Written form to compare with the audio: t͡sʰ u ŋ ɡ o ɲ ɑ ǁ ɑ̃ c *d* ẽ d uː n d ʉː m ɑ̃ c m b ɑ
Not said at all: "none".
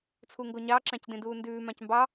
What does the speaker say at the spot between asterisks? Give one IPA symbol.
d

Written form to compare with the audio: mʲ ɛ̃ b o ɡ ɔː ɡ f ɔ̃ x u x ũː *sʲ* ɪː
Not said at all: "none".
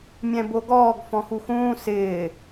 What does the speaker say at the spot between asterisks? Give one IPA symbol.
s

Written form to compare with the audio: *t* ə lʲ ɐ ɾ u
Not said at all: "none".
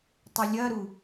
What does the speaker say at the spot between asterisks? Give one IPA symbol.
tˤ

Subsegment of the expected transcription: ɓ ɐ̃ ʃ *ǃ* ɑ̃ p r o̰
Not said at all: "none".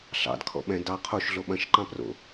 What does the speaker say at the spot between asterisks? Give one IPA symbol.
ǃ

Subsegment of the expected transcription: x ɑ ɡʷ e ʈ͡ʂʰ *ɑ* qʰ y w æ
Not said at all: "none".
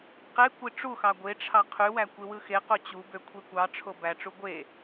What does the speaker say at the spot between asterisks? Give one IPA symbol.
ɑ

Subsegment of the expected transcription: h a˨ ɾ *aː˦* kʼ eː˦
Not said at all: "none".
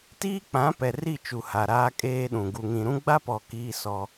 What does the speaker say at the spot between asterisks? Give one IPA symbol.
aː˦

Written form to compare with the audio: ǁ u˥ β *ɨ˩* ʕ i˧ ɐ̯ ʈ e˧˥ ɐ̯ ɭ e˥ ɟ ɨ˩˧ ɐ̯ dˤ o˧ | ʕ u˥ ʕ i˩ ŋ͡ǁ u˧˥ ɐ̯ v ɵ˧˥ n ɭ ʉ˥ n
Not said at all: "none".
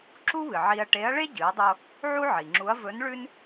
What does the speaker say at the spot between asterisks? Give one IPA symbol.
ɨ˩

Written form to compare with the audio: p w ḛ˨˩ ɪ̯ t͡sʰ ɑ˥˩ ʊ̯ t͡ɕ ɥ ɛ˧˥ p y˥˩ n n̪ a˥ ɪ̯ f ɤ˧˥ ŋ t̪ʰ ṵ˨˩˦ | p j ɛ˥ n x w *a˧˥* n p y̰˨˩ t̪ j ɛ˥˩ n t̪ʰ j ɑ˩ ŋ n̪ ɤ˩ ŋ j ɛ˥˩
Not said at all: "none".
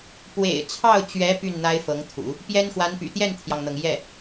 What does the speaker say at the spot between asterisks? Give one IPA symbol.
a˧˥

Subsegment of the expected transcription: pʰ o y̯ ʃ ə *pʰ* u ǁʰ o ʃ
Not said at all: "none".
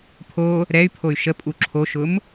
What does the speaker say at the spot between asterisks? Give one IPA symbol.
pʼ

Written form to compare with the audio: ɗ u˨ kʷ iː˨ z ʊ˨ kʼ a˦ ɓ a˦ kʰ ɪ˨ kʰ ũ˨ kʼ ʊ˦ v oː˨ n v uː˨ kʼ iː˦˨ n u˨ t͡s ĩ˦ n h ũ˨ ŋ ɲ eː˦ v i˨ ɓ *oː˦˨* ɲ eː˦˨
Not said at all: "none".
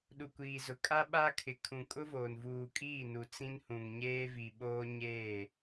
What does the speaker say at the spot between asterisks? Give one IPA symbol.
oː˦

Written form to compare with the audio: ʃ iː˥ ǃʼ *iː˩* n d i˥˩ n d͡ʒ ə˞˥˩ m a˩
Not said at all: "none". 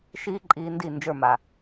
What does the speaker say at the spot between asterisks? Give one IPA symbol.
iː˧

